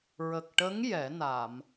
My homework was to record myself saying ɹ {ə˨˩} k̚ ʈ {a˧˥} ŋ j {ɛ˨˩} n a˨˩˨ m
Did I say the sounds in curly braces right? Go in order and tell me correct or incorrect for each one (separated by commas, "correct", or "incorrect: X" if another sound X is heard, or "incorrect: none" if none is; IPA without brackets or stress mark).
correct, incorrect: ə˧˥, incorrect: ɛ˨˩˦